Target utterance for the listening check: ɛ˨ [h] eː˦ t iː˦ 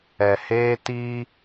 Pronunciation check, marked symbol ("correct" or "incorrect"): correct